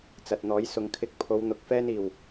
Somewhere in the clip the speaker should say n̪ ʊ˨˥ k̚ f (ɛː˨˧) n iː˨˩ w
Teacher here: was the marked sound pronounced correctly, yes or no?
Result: no